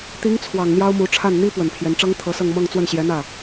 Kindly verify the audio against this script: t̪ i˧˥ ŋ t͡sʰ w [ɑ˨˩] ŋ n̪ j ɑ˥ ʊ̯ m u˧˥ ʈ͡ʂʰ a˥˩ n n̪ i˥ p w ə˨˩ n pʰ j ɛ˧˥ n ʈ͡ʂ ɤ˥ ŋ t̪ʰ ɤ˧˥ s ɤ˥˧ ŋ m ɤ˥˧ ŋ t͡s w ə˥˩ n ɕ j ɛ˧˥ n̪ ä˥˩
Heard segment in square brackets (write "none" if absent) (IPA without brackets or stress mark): ɑ˨˩